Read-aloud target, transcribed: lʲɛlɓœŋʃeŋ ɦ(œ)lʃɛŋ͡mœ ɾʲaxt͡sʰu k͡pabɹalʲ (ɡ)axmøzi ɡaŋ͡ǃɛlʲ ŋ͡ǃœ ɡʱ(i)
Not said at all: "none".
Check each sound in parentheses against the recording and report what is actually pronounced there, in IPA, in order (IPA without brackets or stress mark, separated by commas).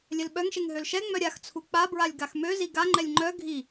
ø, ɡ, i